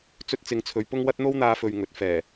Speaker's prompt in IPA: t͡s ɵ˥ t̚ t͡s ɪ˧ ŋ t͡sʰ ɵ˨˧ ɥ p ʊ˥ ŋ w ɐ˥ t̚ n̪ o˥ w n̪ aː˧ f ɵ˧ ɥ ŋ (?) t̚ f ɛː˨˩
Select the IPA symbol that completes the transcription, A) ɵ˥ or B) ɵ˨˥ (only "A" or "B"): B